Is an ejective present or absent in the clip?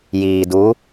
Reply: absent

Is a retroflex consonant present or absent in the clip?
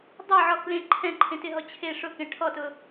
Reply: present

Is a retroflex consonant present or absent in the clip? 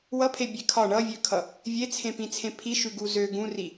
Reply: present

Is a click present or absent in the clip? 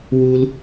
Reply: absent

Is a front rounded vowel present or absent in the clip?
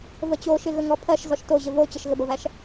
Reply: absent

